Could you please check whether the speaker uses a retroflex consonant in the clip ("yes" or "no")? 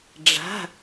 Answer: yes